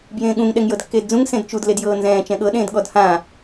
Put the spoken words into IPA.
bjẽːɠũŋ ɗɛŋjɤdkːeːdd͡zũŋ sẽdt͡ʃud ledjɤːnzɛ̃ː t͡ʃɛ̃ɠɤ ɗẽːdɠɔdhã

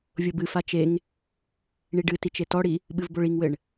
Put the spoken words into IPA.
vʲobɨ fat͡ʃeŋ | ɳiɖɨtit͡ʃ etɔɽi | ɓɨvboɭiŋwɘɳ

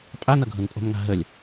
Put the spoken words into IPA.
pʼanʌ ɡʱɤnpʼo̤mŋa̤ɦəlʲ

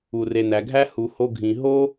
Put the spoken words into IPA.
u˨re˨næ˨ɡʱæ˦ hu˨ho˧ ɡʱĩ˨ɦo˦

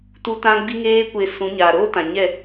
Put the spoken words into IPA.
tu˦tã˦ ɡ͡bi˦ŋeː˦kʷe˧sũ˨˦ ɲaː˨ɾoː˦tã˨ ɲɛ˦˨

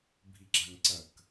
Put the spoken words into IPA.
bʱiɡ͡ǁaŋǀɐk

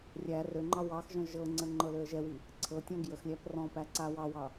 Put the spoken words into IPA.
rʲæ røŋ͡ǃɑ wɑxʒɔ̃ ʒɤŋ͡ǀə ŋ͡ǃɤløə̯ʒɛwi | ǀʰɤtʲɔ̃ ɡjəxlʲæp rɔ̃pæ ǀawɑwɑ

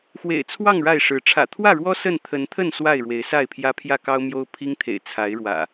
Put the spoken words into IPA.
xwḛ˨˩ɪ̯t͡sʰwɑ˥˨ŋ ɻa˥˨ɪ̯ʂɻ̩˨˦ ʈ͡ʂʰä̰˨˩t̪ʰwä˥˨ɻwɔ˦ sə˥˨n t̪ʰə˨˦nt̪ʰə˥˨n swa˥˨ɪ̯ɻwe˨˦ɪ̯sa˥˨ɪ̯pʰjä˦ pʰjä˥˨kɑ˦ʊ̯mjo˦ʊ̯ pʰi˦ŋt̪ʰḛ˨˩ɪ̯ t͡sʰa˨˦ɪ̯ɻwä̰˨˩

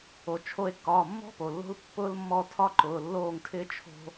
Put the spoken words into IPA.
o˩t͡ʃʰo˧e̯ kːɒː˩˧˩mːɔ̤˥po˩ lːo̤˥l pːʊː˥lmːɔ˥˩ tʰɒ˥ǃʊː˩˧˩lːoː˥˩ŋtʰɪː˥ t͡ʃʰo̤˥

